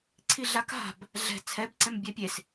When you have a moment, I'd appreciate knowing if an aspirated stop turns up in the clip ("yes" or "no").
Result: yes